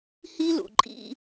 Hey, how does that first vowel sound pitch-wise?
high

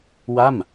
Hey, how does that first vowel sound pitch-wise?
falling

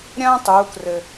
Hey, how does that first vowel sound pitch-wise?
high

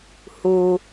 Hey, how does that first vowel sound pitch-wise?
low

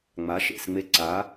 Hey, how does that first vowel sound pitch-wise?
rising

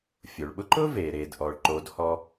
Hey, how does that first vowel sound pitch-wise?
low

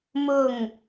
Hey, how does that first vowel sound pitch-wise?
falling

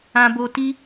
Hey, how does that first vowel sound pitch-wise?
high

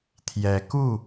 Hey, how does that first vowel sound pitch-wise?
rising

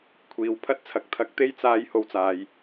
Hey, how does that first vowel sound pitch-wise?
low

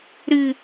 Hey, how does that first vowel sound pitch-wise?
low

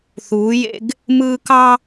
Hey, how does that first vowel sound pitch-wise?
rising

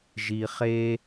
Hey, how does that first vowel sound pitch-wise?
low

